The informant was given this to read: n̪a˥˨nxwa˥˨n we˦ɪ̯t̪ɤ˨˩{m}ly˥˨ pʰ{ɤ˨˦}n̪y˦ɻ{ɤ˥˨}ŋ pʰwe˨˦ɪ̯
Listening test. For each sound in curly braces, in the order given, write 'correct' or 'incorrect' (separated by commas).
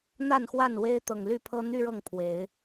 incorrect, incorrect, correct